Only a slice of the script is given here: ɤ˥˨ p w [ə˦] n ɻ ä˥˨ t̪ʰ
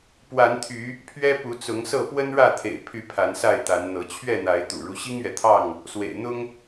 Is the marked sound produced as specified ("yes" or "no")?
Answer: yes